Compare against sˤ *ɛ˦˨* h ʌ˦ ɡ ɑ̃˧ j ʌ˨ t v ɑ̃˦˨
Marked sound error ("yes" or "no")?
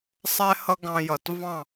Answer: yes